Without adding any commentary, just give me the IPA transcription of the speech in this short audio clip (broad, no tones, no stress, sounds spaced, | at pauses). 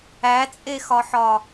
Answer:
æ t͡sʼ e x ɒ ħ ɒ